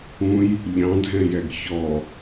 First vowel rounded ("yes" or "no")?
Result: yes